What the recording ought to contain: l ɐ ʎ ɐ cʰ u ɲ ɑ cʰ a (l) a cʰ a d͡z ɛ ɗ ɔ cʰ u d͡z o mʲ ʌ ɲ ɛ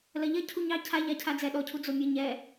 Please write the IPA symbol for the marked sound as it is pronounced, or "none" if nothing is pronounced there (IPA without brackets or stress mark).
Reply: ʎ